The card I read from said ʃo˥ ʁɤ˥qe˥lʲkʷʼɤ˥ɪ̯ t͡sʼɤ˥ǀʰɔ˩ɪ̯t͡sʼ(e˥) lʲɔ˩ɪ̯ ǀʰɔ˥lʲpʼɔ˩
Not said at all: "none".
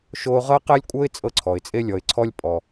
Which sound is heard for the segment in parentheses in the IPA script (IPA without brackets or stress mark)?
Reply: e˥